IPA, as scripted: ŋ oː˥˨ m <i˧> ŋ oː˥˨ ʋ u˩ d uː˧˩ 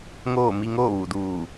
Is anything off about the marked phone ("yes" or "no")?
no